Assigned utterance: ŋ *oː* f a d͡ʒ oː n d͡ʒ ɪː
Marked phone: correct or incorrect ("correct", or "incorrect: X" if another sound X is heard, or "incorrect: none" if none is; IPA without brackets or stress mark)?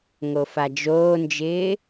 incorrect: o